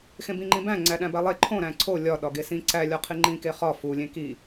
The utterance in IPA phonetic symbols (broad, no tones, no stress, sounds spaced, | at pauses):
x ẽ b ĩ ŋ͡ǃ ĩ b æ̃ ŋ͡ǀ æ ɗ æ̃ b æ lˠ e ǃʰ õ ɾ æ̃ ǀʰ o lʲ ɒ ɗ ɒ ɡ e s ĩ ǀ æ lʲ ɒ qʰ i ŋ͡ǃ ĩ k e χ ɒ f u lʲ ẽ k i